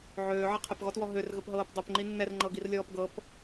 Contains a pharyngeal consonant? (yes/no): yes